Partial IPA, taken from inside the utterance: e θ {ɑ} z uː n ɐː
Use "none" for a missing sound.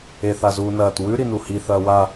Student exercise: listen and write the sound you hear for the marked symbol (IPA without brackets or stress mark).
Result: a